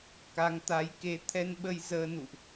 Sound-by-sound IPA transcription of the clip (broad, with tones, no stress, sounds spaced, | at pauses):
k a˨˦ ŋ t̪ a˨˦ j k e˨˦ t̪ʰ ɛ˧ n ɓ ə˧ j z əː˧ n ṵ˧˨ ʔ